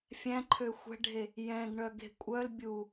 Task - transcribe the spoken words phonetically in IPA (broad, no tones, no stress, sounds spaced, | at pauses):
fʲ æ̃ ǃʰ ø xʷ ɛ̤ ɖʱ e | j ɛ̃ ɡ ɳ œ ɡ e̤ kʷʼ œ l bʲ u